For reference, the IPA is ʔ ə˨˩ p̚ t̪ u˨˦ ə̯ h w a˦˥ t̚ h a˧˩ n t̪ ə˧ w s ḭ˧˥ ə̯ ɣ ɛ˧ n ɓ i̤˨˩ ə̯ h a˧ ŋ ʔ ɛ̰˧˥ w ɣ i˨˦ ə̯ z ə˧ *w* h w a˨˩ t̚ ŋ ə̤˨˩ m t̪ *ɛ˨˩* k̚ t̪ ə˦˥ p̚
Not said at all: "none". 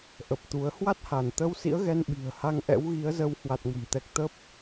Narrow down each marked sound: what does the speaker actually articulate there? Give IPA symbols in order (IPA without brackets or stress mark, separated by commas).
w, ɛ˨˩